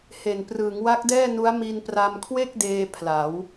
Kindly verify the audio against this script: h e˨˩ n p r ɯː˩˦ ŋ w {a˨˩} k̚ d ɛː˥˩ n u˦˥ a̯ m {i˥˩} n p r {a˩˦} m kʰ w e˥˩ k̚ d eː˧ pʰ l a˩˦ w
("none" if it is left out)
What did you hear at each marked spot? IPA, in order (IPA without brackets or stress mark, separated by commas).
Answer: a˦˥, i˧, a˧